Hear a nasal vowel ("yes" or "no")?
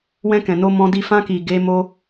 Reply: yes